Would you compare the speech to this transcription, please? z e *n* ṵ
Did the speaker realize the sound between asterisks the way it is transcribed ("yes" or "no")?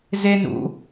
yes